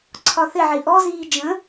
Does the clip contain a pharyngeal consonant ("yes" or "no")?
yes